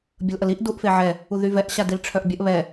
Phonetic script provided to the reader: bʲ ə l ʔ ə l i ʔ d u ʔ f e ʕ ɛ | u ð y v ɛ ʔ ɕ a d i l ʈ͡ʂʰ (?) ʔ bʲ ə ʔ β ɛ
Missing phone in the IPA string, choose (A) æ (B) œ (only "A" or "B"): B